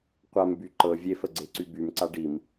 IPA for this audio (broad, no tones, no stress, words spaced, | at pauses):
qʷamby ǃɤ vʲefəɡ͡ǀeǀy bymǀa ɖim